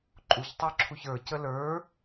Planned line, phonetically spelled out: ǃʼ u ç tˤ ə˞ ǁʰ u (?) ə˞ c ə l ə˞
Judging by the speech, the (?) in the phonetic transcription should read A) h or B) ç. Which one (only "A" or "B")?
B